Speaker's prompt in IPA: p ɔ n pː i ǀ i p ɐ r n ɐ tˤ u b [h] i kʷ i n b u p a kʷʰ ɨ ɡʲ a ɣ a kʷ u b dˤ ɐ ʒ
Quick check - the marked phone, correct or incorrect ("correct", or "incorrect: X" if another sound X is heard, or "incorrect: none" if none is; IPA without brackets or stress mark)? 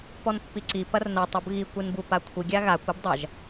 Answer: incorrect: ɣ